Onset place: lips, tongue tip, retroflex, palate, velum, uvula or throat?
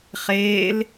uvula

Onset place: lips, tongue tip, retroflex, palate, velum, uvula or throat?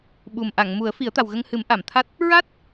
lips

